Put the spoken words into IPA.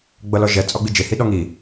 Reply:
ɡ͡b ʌ l ɔ ʒ ɛ t͡sʼ ɔ ɡ͡b i d͡ʒ e h i ɗ ɔ ŋ i

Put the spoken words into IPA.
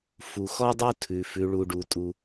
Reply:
f u˩ x ɔ˥ dˤ u˥ tʰ ʉ˩ f ʉ˩ ɭ u˩ ɖ u˩ tʼ u˩

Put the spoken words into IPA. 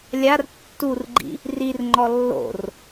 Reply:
lʲ a r tː u r ɡ͡ǃ ḭ | r i r ŋ͡ǃ ɔ lː o̰ r

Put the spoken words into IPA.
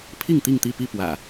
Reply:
pʰ i˥˨ ŋ t̪ i˥˨ ŋ t̪ i˥˨ p i˥˨ p w ä̰˨˩

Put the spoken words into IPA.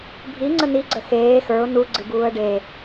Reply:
bʱ i ŋ͡ǀ ə n i ɡ͡ǀ ə x eː x ə˞ ʊ̯ n u ɡ͡ǀ ɨ b uː ə̯ ɖ e

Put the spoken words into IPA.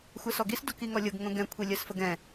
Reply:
xʷ ɛ s ɔ ɡ i s d o k i ŋ ɔ lʲ ɤ ɡ ŋ õ ɡ ɛ̃ kʷʰ i lʲ ɜ s f ə ɡ ɛ̃

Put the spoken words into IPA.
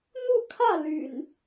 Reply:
n̪ u˥˨ kʰ ä˥˨ l y̰˨˩ n

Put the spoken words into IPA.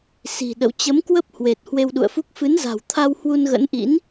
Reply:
s i̤˨˩ ɗ ə̰˧˨ w t͡ɕ ə˨˦ m k w ə˦˥ p̚ h w e˨˩ t̚ h w e˧ w ɗ ṵ˧˨ ə̯ f u˦˥ k̚ f ɨ˨˦ n z a̤˨˩ w t̪ʰ a˧ w h w u˧ n ɣ ə̰˧˥ n ʔ ḭ˧˥ n

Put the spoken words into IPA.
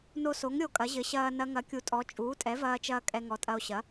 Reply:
n o˧ s o˩˥ ŋ ɾʲ o˧ kʼ ɐ˩˥ ʑ ɘ˩˥ ɕ ɐː˧ n ɐ˧ ŋ ɐ˩˥ kʲ u˩˥ tʼ ɔ˩˥ t͡ʃʼ uː˩˥ tʼ ɛ˩˥ v ɐː˧ t͡ʃ ɐː˧ kʼ ɛ˧ ŋ ɔ˩˥ tʼ ɐ˧ o̯ ɕ ɐ˩˥

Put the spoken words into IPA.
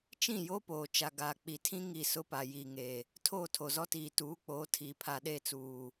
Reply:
t͡ʃ ĩ˦˨ j o˦ p oː˨ t͡ʃ a˨ ɡ aː˨ k͡p i˨ tʰ ĩ˦ ŋ i˨ s ʊ˦ p a˨ j iː˨ ŋ e˨ | tʰ oː˦˨ tʰ o˨ z ɔ˦ t iː˨ t uː˨˦ k͡p oː˨˦ tʰ iː˨ pʰ a˨ ɗ e˦˨ t͡s uː˨

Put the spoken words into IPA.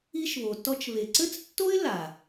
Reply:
i˦ ʃ β o˨ t ɔ˦ t͡ʃ β e˨ ǀ ɘ˦ t͡s tː o˦ ɪ̯ l a˨

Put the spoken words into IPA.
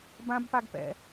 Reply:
b ã b p a ɡ p ɛ̰

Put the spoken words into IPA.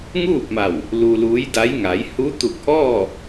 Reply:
ŋ uː˥˨ p̚ m a˧˩ w | l u˧ l uː˧˥ j d a˧˥ j ŋ a˩˧ j h u˧˥ t̪ u˧˩ k̚ ʔ ɔː˥˨

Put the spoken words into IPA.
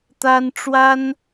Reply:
t̪ a˥ n ʈ͡ʂ w a˥ n

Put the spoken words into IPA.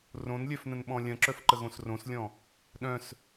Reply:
r õ n lʲ œ f n ə̃ n ɓ ɔ̃ lʲ ɐ̃ ǁ œ f ǃ ə ɣ õ s r õ s lʲ ɔ̃ | ɗ œ̃ s

